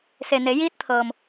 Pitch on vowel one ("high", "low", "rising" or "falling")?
low